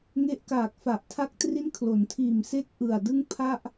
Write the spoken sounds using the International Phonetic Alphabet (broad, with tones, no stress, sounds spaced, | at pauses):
ŋ e˦˥ ʔ k aː˨˩ k̚ f a˨˩ ʔ tʰ a˦˥ k̚ t r i˦˥ n kʰ l o˩˦ n tʰ iː˨˩ m s e˥˩ k̚ ʔ ɯ˨˩ a̯ d ɯ˥˩ ŋ pʰ a˥˩ ʔ